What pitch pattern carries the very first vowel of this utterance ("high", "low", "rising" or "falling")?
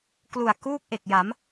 low